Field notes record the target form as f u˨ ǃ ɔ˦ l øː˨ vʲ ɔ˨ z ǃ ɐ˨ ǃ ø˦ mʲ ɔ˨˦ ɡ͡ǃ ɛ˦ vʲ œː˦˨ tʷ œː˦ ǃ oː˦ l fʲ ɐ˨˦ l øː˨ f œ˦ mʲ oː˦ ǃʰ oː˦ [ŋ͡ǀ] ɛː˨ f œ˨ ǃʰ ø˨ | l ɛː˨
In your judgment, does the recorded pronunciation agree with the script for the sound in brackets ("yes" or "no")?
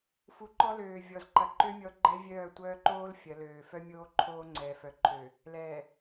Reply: yes